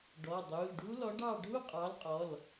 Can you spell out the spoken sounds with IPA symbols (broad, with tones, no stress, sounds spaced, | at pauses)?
ɖ ɔ˩˧˩ dˤ u˩˧˩ l ɖʱ u˦˥ l ɔ˨˥ ɖ ɑ˥˨ ɖʱ u˥˨ qʼ ɑ˨˥ l qʼ ɔ˩˧˩ l